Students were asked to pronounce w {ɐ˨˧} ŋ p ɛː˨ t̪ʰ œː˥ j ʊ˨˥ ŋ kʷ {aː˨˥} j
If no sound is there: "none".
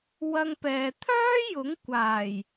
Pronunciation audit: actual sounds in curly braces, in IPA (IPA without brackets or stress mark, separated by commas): ɐ˧, aː˨˩